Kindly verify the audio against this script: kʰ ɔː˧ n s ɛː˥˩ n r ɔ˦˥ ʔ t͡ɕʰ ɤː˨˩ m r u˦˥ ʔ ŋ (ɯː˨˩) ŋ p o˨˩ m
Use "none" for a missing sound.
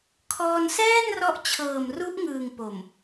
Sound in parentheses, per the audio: ɯː˨˩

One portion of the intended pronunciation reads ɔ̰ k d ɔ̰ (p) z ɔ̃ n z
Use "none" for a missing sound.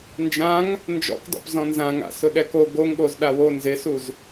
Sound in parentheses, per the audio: p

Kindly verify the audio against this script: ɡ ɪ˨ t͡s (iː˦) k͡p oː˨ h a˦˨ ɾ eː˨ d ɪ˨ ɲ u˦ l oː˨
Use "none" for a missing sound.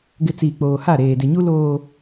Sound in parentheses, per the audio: iː˨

